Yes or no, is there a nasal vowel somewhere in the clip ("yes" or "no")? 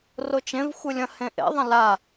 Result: yes